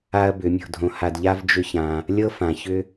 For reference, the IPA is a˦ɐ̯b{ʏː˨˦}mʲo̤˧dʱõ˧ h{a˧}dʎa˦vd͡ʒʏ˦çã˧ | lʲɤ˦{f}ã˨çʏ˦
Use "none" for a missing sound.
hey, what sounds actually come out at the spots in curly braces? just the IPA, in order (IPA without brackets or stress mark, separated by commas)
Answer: ʏ˨˦, a˧, f